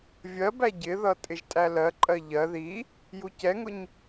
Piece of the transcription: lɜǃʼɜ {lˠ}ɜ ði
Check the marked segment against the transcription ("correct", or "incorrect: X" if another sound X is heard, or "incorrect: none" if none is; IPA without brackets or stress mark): incorrect: ʎ